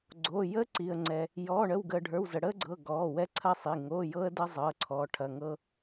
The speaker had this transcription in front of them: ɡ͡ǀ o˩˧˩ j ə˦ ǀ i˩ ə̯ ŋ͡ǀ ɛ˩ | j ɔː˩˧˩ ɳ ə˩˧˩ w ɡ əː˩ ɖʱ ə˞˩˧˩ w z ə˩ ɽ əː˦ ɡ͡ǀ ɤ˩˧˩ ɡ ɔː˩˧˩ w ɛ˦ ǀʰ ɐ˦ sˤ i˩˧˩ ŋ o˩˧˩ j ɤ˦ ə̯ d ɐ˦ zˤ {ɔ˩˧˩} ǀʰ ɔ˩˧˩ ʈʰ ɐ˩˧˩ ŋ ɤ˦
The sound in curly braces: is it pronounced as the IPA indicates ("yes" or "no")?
no